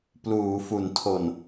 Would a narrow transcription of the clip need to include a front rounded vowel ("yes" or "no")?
no